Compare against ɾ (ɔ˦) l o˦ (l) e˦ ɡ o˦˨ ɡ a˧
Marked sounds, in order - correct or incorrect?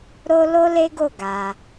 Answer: incorrect: o˦, correct

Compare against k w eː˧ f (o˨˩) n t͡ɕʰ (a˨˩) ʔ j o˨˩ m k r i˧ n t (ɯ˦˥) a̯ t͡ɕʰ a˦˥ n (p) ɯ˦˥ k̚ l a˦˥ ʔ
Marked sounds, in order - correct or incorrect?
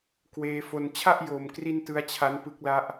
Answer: incorrect: o˧, incorrect: a˥˩, correct, correct

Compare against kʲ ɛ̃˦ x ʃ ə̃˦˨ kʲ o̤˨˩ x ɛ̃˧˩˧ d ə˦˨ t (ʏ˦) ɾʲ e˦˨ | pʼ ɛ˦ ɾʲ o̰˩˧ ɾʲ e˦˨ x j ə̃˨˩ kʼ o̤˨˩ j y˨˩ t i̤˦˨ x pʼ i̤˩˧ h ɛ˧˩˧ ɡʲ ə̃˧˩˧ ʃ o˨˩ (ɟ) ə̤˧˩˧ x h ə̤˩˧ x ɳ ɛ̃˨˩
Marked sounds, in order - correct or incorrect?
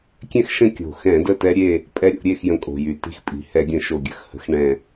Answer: incorrect: ɛ˦, incorrect: ɡʲ

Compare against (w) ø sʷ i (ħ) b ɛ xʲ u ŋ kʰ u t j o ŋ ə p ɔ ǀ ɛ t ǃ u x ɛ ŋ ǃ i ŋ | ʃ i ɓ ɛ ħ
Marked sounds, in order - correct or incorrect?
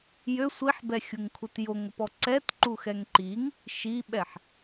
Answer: incorrect: j, correct

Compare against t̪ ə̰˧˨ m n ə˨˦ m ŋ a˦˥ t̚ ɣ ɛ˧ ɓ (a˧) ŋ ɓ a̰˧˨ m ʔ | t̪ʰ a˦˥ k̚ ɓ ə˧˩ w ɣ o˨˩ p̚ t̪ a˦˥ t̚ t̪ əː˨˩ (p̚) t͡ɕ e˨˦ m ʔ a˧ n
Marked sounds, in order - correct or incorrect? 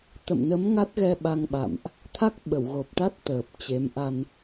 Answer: correct, correct

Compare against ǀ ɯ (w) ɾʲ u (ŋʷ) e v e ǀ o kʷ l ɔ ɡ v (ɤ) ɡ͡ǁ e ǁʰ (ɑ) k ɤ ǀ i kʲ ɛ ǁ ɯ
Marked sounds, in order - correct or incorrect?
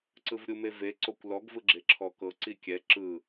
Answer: incorrect: v, incorrect: m, incorrect: ɯ, incorrect: ɔ

